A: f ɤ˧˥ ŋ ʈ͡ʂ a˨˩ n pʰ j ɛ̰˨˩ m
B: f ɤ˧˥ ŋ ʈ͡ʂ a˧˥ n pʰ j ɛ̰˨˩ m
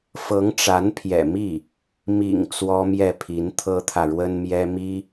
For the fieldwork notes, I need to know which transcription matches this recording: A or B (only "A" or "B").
B